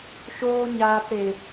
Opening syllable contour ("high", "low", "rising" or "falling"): high